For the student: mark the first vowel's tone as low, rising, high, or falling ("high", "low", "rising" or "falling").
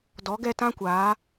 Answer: rising